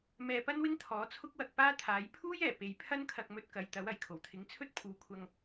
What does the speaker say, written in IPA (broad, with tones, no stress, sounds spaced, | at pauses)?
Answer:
m ɛː˧ p ɐ˥ n w ɪ˥ ŋ t̪ʰ ɔː˨˥ t͡sʰ ʊ˥ k̚ w ɐ˧ k̚ p aː˥ t̪ʰ aː˨˥ j pʰ uː˥ j ɛː˨˩ p e˨ j pʰ ɐ˥ n kʰ ɐ˧ k̚ m ɵ˧ t̚ k ɐ˨˧ j t̪ ɐ˨˥ w ɐ˨˩ j kʰ o˨˩ w t̪ʰ ɪ˨˥ ŋ t͡sʰ ɵ˥ t̚ pʰ uː˨˧ kʷʰ ɐ˧ ŋ